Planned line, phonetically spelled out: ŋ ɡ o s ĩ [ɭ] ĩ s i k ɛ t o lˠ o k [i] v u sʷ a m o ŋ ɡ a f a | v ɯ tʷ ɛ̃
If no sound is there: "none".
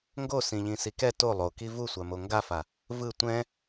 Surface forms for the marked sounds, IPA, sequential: ʎ, i

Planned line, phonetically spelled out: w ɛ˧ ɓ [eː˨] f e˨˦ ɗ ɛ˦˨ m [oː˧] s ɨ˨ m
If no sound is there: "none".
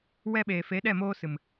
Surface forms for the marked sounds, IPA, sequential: eː˨, oː˧

